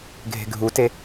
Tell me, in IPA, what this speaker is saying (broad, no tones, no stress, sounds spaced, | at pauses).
ɡʱ e̤ ɡʱ u t e